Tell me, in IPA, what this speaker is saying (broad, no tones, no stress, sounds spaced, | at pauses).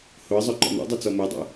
h o ə̯ zˤ o ǃ ɔ̰ n ɔ̰ dˤ o t͡s ɔ m o dˤ o̰